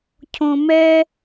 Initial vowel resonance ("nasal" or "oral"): nasal